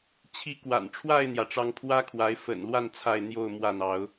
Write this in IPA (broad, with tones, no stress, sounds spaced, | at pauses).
t͡ɕʰ i˨˦ k w a̰˨˩ n ʈ͡ʂʰ w a˥˨ ɪ̯ n̪ j ä˩ ʈ͡ʂ ɑ˨˦ ŋ pʰ w ä˦ kʰ w a˨˦ ɪ̯ f ə̰˨˩ n l w a˥˨ n t͡sʰ a˥˨ ɪ̯ n̪ j o˥˨ ʊ̯ m w ä˥˨ n̪ ɑ˨˦ ʊ̯